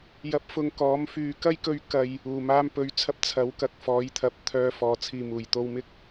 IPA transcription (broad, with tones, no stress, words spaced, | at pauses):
jɐ˧p̚fʊ˧ŋkɔː˨˥m fyː˨kɐ˥jkɵ˧ɥ kɐ˨j | uː˨˩maː˧mpɵ˨˧ɥt͡sʰɐ˧p̚ t͡sʰɐ˨˥w kɐ˨k̚ fɔː˨˥jt̪ʰɐ˨p̚t̪ʰœː˧ fɔː˨t͡sʰiː˨ muː˨˩j t̪o˧wmɪ˥k̚